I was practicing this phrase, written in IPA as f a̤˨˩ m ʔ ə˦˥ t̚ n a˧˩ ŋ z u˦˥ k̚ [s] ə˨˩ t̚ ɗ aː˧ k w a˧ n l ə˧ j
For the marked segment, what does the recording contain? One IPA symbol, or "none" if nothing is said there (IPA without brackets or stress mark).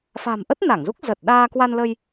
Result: z